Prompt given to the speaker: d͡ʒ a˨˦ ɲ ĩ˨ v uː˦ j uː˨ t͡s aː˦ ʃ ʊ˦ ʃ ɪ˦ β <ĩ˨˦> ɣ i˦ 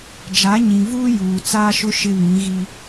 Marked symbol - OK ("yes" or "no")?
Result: yes